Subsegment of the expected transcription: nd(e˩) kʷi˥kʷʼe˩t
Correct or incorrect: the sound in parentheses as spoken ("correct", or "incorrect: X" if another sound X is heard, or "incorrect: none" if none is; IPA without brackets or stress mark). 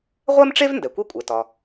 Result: incorrect: ɛ˩